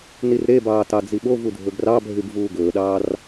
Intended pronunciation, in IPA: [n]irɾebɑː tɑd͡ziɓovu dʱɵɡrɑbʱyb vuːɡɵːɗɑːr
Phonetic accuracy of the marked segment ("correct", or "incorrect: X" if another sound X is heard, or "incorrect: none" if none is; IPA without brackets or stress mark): correct